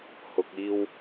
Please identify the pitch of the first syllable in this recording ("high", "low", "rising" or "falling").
low